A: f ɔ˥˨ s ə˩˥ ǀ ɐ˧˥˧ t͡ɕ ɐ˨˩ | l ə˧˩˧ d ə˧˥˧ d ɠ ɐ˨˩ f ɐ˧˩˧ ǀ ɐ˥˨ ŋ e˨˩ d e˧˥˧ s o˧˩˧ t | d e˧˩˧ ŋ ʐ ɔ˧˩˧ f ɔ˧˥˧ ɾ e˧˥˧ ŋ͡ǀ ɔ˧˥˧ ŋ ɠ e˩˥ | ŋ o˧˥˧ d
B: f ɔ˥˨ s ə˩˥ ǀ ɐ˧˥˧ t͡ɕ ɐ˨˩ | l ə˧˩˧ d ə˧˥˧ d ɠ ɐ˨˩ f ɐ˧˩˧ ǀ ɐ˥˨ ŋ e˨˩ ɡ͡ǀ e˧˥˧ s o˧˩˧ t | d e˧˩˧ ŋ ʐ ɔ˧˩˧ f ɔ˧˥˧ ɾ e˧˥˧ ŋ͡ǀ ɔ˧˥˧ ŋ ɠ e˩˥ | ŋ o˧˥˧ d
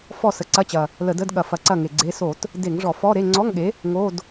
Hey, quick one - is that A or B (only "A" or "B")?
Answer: B